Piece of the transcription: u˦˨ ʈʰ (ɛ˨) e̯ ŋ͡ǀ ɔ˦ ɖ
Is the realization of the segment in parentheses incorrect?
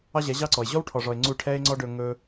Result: yes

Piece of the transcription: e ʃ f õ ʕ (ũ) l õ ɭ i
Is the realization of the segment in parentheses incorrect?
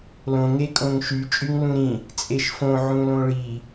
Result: no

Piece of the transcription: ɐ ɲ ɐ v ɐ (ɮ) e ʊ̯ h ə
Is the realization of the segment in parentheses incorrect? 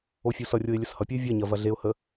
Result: no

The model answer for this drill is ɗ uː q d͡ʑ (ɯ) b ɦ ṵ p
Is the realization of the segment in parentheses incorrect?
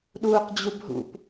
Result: yes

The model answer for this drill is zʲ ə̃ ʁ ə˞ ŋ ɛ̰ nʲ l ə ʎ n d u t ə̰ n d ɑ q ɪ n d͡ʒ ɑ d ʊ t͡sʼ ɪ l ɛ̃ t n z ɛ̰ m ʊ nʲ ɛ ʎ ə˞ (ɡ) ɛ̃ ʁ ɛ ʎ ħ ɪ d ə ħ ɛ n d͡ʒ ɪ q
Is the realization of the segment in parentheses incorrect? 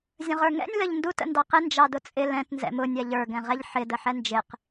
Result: no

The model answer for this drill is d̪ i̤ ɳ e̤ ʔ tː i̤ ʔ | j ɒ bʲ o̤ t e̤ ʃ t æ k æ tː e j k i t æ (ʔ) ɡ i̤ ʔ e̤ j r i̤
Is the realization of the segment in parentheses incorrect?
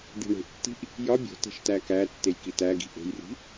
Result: yes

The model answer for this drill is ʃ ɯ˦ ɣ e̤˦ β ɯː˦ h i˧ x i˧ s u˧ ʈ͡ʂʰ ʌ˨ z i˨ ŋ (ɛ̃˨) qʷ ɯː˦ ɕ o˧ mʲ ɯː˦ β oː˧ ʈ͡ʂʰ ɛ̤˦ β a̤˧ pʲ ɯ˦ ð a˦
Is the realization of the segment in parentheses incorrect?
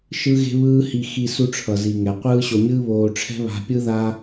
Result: yes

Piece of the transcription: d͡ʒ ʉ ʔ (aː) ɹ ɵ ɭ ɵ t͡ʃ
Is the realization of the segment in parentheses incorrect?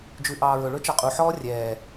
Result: yes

